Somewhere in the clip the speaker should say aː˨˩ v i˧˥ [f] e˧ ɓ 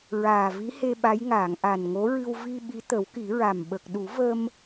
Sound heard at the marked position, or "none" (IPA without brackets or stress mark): h